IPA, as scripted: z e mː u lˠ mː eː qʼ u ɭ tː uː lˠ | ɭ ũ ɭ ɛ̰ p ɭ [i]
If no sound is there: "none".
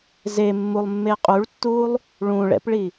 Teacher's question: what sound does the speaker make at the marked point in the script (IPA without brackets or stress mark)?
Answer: i